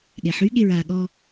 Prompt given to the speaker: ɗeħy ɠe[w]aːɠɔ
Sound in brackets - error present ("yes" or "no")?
yes